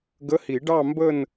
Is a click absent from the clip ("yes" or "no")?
yes